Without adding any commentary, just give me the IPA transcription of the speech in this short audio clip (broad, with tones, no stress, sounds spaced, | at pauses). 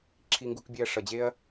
ǁʰ i˧ ŋ ɡ u˧ k bʲ e˧ ɐ̯ ʂ ʌ˧ d͡ʑ e˥ ɐ̯